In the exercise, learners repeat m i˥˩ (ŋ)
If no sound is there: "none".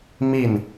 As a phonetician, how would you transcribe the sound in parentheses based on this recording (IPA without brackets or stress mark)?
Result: n